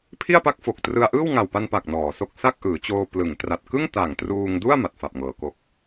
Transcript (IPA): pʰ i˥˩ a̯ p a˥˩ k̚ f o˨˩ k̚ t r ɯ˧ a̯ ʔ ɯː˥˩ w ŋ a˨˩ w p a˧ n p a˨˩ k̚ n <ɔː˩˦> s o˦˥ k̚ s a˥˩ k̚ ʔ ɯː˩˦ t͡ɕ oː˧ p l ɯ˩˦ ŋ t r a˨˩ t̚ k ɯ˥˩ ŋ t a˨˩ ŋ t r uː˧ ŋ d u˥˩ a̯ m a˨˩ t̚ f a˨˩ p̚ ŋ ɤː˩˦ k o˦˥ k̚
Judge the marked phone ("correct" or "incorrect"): correct